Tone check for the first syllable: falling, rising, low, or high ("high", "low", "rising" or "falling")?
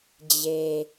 low